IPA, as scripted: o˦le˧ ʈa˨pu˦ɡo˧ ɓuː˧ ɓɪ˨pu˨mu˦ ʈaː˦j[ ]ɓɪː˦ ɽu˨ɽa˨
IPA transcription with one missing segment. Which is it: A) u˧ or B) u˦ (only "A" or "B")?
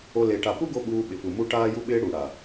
B